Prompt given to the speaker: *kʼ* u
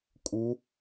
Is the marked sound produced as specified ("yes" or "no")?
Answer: yes